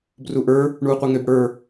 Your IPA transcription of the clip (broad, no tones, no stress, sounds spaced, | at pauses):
b r u ʔ ə˞ | ɳ uː qʷ ɛ ŋ ø b ɽ ə˞